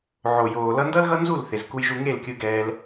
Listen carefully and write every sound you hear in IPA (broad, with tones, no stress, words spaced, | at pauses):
ʕo˨joː˨ lʌ˧ndʌ˦lɣʌ˦nzu˦˨l θe˨zku˧jʒu˧ ŋe˦˨lkʲɯ˧ɡɛː˧l